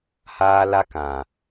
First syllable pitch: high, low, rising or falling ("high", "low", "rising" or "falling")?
high